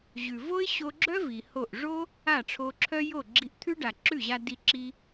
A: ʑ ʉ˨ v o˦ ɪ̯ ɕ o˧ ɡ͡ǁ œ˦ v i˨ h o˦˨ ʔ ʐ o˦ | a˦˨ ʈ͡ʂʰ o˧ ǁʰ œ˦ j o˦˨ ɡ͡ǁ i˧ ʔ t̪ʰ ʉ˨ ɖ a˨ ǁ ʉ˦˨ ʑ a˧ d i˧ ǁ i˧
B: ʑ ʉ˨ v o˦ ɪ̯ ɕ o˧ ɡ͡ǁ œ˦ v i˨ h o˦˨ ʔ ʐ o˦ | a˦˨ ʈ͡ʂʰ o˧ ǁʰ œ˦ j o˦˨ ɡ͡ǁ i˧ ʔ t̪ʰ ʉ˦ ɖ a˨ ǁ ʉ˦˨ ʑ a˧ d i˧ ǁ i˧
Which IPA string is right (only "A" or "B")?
B